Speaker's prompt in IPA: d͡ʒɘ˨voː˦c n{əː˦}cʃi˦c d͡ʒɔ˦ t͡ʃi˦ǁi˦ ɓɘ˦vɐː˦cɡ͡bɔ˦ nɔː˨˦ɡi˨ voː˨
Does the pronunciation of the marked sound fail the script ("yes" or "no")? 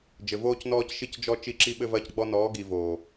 yes